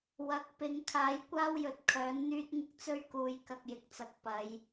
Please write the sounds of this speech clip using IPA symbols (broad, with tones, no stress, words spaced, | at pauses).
wɐ˨˥k̚pɪ˨˧ŋ kʰaː˨˥jkʷaː˥wjɵ˨t̚ kʰœː˨˥nn̪yː˥t̚ŋɪ˥k̚ t͡sɵ˥ɥkuː˨˧j kɐ˨k̚jɪ˨k̚t͡sɐ˨k̚ pɐ˨˧j